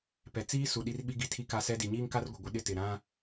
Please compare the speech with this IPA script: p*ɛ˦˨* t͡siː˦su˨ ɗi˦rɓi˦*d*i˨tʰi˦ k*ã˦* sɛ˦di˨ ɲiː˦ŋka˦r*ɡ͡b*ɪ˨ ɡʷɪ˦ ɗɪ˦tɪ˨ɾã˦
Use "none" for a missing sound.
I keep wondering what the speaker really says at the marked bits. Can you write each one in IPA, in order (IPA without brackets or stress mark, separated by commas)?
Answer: ɛ˨, ɡ, a˦, ɡʷ